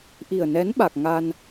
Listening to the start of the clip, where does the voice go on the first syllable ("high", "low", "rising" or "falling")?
low